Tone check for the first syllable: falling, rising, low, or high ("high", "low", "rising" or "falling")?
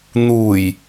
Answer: low